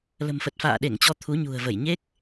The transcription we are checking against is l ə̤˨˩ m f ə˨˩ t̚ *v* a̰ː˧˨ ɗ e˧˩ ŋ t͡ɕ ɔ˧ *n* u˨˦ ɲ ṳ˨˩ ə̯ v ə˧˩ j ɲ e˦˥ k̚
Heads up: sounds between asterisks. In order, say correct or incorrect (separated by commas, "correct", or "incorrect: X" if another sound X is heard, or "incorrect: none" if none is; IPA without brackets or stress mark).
incorrect: f, incorrect: t̪ʰ